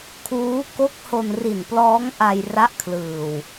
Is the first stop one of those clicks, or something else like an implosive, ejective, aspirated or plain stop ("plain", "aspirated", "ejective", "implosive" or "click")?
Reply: aspirated